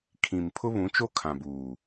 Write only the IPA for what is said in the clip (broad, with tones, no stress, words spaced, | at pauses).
kʰĩ˨m pʰʊ˦βũ˨˦t͡ʃo˦ kʰã˨buː˨